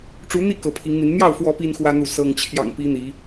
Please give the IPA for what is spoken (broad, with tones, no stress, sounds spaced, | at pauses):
ʈ͡ʂ u˨˦ n̪ i˥˨ k ɤ˨˦ pʰ i˨˦ ŋ n̪ i˨˦ n n̪ j ɑ˥˨ ʊ̯ f w ɔ˨˦ p i˦ n x w ä˦ n̪ u˥˨ s ɤ˦ ŋ t͡ɕʰ j ɑ̰˨˩ ŋ p i˨˦ n̪ i˨˦